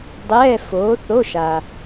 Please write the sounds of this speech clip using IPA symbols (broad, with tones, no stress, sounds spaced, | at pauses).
dˤ ɛː˧˥˧ f oː˨˥ θ o˧˥˧ ʃ a˨